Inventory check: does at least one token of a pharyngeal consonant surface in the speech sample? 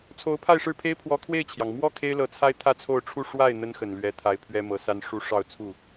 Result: no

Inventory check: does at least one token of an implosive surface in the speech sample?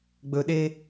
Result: yes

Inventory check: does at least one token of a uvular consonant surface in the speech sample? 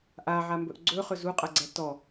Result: yes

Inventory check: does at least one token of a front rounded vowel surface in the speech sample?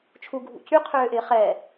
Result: yes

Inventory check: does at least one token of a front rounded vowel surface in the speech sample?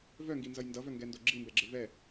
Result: yes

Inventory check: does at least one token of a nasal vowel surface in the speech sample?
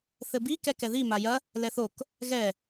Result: no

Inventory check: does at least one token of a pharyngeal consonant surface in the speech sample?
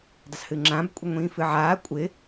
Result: yes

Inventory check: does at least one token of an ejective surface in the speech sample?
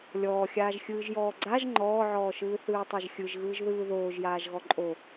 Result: yes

